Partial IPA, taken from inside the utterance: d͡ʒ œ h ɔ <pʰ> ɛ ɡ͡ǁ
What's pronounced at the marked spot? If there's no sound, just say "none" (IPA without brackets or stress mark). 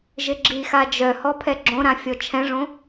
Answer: pʰ